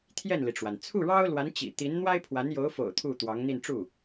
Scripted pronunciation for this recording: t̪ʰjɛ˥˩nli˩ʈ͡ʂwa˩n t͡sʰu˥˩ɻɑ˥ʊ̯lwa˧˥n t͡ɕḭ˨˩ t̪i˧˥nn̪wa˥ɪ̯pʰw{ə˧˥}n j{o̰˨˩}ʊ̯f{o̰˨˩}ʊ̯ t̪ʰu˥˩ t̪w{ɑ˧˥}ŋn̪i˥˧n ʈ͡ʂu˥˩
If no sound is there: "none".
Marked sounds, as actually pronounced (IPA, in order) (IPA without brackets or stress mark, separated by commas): a˧˥, o˧˥, o̰˨˩, ɑ˧˥